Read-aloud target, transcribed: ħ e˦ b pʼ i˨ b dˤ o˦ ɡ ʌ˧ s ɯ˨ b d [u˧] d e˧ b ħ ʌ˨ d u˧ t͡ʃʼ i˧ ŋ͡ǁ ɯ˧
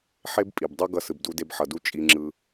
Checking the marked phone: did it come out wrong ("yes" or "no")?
no